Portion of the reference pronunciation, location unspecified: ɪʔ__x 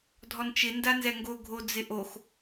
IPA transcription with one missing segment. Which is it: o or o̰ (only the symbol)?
o